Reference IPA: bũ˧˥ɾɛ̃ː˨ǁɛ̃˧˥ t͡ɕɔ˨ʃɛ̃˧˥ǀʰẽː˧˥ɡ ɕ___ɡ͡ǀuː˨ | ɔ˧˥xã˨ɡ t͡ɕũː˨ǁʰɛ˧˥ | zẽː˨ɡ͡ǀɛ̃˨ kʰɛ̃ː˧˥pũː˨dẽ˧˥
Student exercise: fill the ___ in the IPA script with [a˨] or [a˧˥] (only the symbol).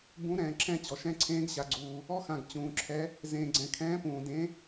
a˨